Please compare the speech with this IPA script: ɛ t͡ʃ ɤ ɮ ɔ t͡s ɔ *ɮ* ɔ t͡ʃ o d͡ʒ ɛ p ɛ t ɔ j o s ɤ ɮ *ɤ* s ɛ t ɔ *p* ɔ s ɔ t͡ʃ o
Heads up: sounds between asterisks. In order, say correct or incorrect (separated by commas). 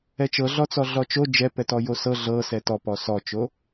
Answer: correct, correct, correct